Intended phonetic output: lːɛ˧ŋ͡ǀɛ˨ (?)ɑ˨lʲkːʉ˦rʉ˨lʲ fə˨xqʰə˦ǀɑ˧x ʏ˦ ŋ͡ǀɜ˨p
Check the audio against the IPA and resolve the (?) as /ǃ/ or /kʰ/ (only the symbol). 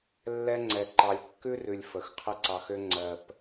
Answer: ǃ